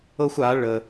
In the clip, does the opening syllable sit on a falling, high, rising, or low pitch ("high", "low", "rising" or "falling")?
high